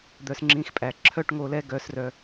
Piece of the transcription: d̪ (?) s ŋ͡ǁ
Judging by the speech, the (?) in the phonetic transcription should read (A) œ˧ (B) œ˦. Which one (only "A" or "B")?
A